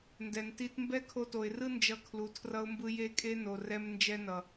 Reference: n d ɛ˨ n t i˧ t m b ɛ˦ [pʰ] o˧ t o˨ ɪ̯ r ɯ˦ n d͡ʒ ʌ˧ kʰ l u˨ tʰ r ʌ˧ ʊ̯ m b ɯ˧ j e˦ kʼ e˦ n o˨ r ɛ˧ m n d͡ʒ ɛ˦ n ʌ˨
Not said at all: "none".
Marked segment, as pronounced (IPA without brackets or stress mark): kʰ